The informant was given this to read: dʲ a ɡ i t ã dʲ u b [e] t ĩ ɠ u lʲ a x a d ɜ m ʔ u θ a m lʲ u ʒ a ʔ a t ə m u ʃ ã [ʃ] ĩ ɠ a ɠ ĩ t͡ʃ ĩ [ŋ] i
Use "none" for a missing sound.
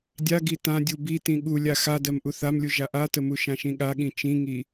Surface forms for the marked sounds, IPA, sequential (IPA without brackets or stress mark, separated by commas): i, ʃ, ŋ